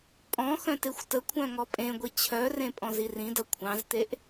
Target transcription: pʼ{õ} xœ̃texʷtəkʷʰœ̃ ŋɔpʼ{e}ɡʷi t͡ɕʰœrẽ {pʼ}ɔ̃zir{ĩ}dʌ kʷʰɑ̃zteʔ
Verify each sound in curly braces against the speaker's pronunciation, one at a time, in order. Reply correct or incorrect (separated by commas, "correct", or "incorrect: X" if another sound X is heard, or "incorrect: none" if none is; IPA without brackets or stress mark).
incorrect: ɔ̃, incorrect: ẽ, correct, correct